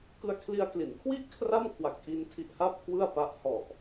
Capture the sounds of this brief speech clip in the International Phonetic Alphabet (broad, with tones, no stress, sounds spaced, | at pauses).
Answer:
k ɯ˧ a̯ kʰ l i˧ a̯ k l i˩˦ n kʰ w i˥˩ ʔ kʰ r a˥˩ m kʰ w a˨˩ k̚ ʔ i˧ n tʰ i˦˥ ʔ h a˥˩ p̚ kʰ w ɯ˥˩ a̯ p a˦˥ ʔ h ɔ˨˩ ʔ